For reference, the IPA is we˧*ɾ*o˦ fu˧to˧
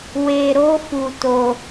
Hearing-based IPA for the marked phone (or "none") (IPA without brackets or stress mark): ɾ